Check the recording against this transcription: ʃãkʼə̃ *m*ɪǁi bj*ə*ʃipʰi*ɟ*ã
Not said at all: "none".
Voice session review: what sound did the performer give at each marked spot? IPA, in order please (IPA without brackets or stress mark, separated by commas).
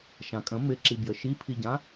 m, ə, ɟ